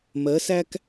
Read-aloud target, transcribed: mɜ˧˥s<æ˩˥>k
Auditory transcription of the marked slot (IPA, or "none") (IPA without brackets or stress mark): æ˥